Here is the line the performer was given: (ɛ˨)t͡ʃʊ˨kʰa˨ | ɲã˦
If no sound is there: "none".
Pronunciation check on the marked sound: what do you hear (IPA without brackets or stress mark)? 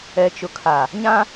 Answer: ɛ˨